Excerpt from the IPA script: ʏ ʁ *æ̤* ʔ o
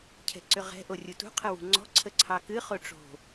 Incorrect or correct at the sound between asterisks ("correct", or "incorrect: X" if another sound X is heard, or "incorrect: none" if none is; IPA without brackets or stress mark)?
incorrect: ɛ̤